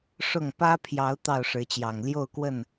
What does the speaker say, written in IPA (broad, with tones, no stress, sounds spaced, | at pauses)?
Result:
ʂ ʊ˥˨ ŋ p ä˦ pʰ j ɑ˨˦ ʊ̯ t̪ ɑ˥˨ ʊ̯ ʂ ɻ̩˨˦ t͡ɕ j ɑ˨˩ ŋ l j o˥˨ ʊ̯ k w ə˥˨ n